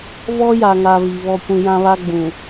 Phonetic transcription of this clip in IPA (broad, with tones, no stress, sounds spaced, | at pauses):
v ɔ˦ j a˨ ŋ a˨ v i˨ β ɔ˦ kʷ ĩ˦ j ã˦ β a˦ ɡ͡b ũ˨